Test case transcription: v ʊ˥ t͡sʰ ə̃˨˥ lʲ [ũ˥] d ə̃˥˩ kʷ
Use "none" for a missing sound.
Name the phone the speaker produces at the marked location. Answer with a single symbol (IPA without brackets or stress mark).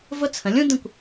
ũ˥